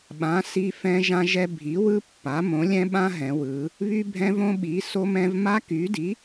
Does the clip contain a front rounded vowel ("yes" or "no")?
yes